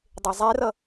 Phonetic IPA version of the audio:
dˤ e zˤ ɛ r ʌ

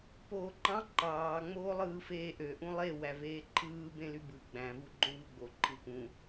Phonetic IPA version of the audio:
p oː ǃ ɑ̃ ǃ ɑː ŋ͡m oː lˠ ɯː f eː ʔ ø ʔ ũ lˠ e w æ v eː ǃʰ ɯː b ẽ l y b ɯ ɡ͡b æ̃ v u ɡ͡ǃ õ v ɯ ɡ͡b o ǃʰ ɯ p ũ

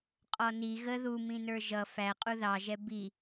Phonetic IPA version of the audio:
qʼ ɔ n i ɣ ə ð u m ĩ n ə˞ ʒ ʌ f æ qʼ u ð ɑ ʒ ɛ b i

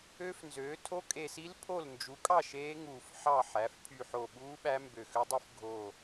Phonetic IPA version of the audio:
ø˦˥ f n z øː˩˥ tʰ o˦˥ kʼ e˧˩ s i˦˥ l pʰ o˥˩ l n d͡ʒ u˩˥ kʼ ɑ˥˩ ʃ eː˦˥ ŋ uː˧˩ f ħ ɑ˥˩ ħ æ˩˥ f pʰ y˧˩ ħ o˧˩ ɓ uː˦˥ ɓ æ˦˥ m b ø˧˩ x ø˦˥ dˤ ɯ˦˥ f ɡʱ o˧˩

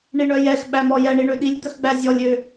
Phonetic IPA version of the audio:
ɳ i ɳ œ j ɛ x ɓ æ m ɔ j ɛ ɳ i ɳ ø ɗ i lʲ d̪ œ x ɡ͡b æ zʲ ɔ lʲ ø

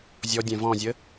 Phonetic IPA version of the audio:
zʲ ɔ dʲ ɛ̃ v ɔ̃ zʲ ə

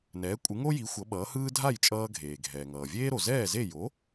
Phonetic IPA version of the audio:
n ɛː˩˥ kʷʼ ɯ˩˥ ŋ o˥ j i˩˥ xʷ ʌ˩˥ ɓ ʌː˩˥ h ɯː˥ dʱ a˥˩ j t͡ʃʼ ʌː˧ ɡʱ eː˩ ɡʱ ɛː˩ ŋ ʌː˩ vʲ eː˥ ɾ o˩ z ɛː˥˩ z e˥˩ j o˩˥

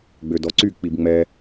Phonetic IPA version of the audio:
ɡ͡b ø d ɔ ǀ y k͡p i b ŋ͡m ɛ

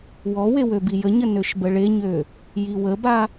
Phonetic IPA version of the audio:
w ɔ w e w ø b i j ə ɲ ə n ø ʃ b ə ɭ e ɲ ø | j i w ə b a

